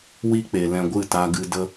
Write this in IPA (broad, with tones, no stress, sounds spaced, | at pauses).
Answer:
w i˧ k͡p e˨ l ɛ̃˧ ɡʷ ɨ˦˨ t a˧ ɡ ɨ˧ d ə˧